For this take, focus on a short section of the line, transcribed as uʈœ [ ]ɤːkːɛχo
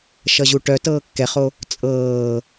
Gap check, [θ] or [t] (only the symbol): t